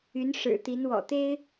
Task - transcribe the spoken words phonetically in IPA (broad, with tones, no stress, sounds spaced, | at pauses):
y˧˥ n ʂ ɻ̩˨˩ t̪ i˧˥ n w ɔ̰˨˩ t̪ e˥ ɪ̯